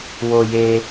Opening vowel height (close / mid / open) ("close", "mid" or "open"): mid